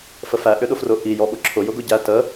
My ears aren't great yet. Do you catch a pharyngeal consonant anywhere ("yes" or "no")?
no